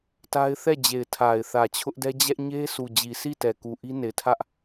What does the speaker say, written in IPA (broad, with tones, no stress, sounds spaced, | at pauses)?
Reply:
t a˦ ɪ̯ θ ɛ˦˨ d͡ʑ e˨ ɪ̯ tʰ a˨ ɪ̯ θ ä˨ t͡ɕʰ ʊ˦ ʔ d ɛ˦ d͡ʑ ɛ˦ ʔ ɲ e˦ s u˨ d͡ʑ i˨ s i˦˨ t ɛ˨ k u˨ ʔ i˦ n e˨ ɪ̯ tʰ ä˦ ʔ